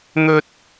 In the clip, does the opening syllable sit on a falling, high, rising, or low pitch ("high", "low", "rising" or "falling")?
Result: high